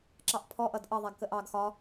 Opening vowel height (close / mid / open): open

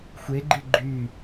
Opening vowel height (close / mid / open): mid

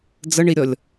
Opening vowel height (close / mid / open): mid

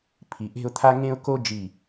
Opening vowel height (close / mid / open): close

